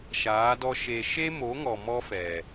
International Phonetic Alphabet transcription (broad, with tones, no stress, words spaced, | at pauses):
ʃaː˨˦dɔ˦ʃeː˧ ʃeː˦mo˨˦ŋɔ˨ mɔ˦fɛ˨